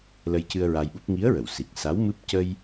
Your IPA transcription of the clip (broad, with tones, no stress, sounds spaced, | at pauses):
l ə˧ j c ɨ˧ ə̯ ɹ a˧ j ɓ u˦˥ p̚ ŋ i˧˥ ə̯ ɹ ə˨˩˨ w s i˨˩ k̚ s a˧˥ w m ɨ˦˥ p̚ c ə˧ j